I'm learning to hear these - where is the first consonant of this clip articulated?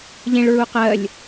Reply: palate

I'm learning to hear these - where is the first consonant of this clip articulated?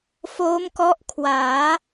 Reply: lips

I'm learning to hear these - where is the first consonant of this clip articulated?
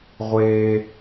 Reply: uvula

